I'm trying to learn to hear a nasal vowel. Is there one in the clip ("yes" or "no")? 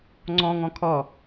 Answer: yes